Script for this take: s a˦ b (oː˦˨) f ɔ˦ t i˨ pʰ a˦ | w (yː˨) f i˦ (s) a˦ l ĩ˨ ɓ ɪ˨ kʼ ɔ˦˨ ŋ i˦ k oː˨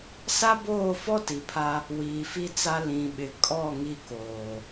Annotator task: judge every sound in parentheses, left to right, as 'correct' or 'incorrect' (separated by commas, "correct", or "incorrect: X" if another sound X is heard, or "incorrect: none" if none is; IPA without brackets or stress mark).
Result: correct, incorrect: iː˨, incorrect: t͡s